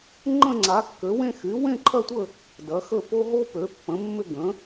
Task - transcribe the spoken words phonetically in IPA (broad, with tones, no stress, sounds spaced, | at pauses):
ŋ͡ǃ ə̃˥˧ ŋ͡ǀ a˩˥ kː ø˩˥ w ẽ˥˧ x y˩˥ w ẽ˥˧ ǃʰ ɐ˥˧ tʷ ə˥˧ | d ɐ˩˥ x ə˥˧ p o˥ ɦ o˥ p ø˩˥ pː ə̃˩˥ mː ʏ˥˧ ɡ ə̃˩˥